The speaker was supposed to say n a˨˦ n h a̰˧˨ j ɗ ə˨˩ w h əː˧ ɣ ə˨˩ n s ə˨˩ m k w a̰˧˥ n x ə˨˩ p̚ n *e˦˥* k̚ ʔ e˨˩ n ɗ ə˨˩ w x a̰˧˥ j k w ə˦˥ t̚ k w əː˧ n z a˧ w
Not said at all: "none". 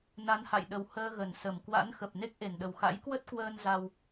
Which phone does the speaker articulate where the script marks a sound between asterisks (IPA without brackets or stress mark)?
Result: e˦˥